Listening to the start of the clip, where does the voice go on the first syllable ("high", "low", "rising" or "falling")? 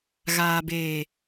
low